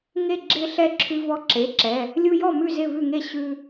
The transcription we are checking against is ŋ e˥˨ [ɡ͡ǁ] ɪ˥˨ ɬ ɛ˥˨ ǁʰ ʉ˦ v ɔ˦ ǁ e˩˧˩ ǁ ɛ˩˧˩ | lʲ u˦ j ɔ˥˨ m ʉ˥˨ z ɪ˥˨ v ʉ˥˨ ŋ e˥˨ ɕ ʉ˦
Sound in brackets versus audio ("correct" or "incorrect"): correct